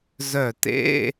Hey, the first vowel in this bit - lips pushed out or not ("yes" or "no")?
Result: yes